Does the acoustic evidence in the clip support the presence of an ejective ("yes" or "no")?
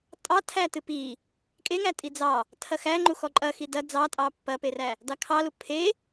yes